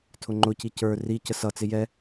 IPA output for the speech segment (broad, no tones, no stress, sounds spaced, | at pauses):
tʰ ʊ ŋ͡ǃ ʊ c i c ə˞ r i c ə s ʌ t͡s ɪ j ɛ